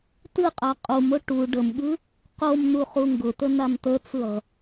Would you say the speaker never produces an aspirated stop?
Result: yes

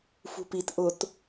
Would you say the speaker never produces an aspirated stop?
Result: yes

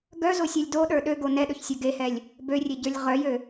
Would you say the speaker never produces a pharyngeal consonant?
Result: yes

